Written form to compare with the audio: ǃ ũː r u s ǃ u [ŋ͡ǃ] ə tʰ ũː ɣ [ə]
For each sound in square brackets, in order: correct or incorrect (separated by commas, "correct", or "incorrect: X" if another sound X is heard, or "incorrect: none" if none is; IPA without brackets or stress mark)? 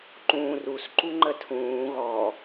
correct, incorrect: ɔ